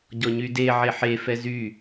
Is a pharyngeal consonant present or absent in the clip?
present